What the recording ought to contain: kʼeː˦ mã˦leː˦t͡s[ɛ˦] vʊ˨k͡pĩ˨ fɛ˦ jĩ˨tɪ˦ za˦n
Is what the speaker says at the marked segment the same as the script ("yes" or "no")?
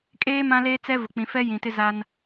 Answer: yes